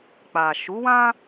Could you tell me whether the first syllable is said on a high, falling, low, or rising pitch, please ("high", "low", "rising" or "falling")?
low